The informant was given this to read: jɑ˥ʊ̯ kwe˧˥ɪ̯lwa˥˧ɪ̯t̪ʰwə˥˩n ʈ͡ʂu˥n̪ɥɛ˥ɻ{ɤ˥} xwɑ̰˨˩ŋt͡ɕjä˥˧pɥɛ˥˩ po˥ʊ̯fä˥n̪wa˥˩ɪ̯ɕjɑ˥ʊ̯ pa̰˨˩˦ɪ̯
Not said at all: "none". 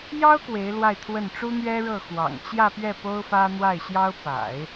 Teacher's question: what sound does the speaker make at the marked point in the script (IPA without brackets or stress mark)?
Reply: ɤ˥˩